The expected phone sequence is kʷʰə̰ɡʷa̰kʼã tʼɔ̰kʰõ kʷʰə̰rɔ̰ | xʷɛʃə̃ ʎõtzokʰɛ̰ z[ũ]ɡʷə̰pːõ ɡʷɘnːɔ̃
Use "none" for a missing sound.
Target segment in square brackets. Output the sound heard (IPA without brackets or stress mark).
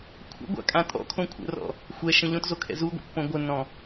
u